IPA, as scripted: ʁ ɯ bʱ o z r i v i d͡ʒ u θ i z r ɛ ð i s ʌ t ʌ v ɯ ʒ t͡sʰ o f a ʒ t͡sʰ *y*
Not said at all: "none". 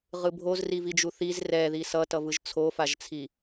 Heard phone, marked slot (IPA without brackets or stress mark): i